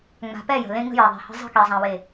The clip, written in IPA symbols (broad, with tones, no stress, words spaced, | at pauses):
ŋ͡ma̤˨pɛ˦˨ jə̤˨lẽ˦ ŋə̤˦jɛ˨ðˤe̤˨hə̤˦ zˤə̤˦ ke˨zˤã˨we˨